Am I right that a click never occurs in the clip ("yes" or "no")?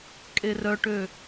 yes